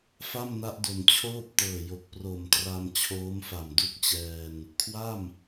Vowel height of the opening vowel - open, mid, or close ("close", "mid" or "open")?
open